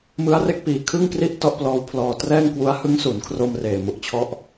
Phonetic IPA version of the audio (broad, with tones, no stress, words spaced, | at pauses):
mɯ˦˥a̯re˥˩k̚piː˧ kʰɯ˥˩ŋkri˥˩ʔ tɔ˥˩ʔplɔː˦˥wpʰlɔː˧ trɛː˥˩ŋkwu˦˥a̯ hɯ˦˥ŋsu˩˦nkʰro˧m reː˨˩mu˥˩ʔt͡ɕʰɔ˥˩ʔ